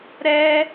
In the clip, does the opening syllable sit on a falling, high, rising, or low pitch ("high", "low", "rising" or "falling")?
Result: high